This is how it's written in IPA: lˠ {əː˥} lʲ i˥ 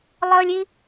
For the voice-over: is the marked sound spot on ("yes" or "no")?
yes